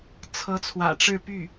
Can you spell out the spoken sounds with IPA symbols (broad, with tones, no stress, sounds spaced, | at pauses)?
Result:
t͡sʰ ɤ˧˥ t͡sʰ w ä̰˨˩ ʈ͡ʂ ɻ̩˥˧ p y˥˩